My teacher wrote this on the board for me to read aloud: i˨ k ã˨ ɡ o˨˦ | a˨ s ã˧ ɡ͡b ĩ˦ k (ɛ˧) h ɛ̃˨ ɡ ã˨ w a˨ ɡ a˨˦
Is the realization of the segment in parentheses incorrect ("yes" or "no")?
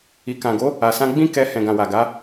no